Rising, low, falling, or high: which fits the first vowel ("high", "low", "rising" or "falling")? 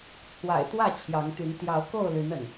low